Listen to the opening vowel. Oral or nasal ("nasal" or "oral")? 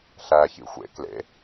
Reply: oral